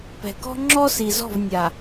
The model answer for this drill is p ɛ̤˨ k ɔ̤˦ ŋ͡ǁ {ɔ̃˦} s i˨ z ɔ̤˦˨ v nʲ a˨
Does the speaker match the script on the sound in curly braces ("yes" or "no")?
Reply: no